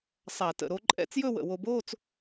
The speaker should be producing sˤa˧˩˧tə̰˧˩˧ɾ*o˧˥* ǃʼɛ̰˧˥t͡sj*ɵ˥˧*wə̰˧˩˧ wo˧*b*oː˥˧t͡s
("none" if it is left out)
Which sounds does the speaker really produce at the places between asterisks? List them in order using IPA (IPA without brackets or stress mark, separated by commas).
o˧˥, ɵ˥˧, b